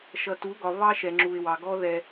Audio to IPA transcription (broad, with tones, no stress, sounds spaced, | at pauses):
ʃ ʌ˨ t u˨˦ ɡ ɒ˨ β ɑ˦ ʃ ɛ˨ ŋ͡ǁ u˨ ɪ̯ w ɑ˨ ɡ ɔ˦ ð ɛ˦